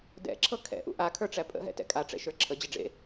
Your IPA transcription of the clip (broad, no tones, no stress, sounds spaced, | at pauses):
d ɛ̰ ǁʰ ɤ kʰ ɛ̰ ʔ ṵ ʔ a kʰ ə˞ ʈ͡ʂ æ pʼ ə̰ ɦ ɛ̰ t ɛ̰ kʼ a ʈ͡ʂ ɛ̰ ʃ ə˞ ǁʰ ə d͡ʑ ə ɖ͡ʐ ḛ